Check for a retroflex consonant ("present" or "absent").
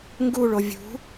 present